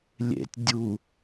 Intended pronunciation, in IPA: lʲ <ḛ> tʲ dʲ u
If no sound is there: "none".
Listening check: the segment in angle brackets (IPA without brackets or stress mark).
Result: ḛ